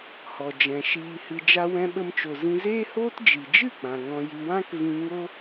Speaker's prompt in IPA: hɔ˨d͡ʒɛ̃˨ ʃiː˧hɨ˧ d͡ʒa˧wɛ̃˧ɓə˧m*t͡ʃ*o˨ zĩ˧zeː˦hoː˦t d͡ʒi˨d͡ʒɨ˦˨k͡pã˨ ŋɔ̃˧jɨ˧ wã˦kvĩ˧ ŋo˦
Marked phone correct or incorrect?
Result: correct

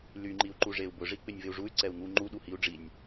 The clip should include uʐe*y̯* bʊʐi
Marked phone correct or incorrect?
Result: incorrect: u̯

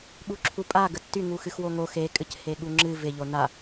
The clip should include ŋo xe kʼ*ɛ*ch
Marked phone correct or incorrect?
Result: incorrect: ɨ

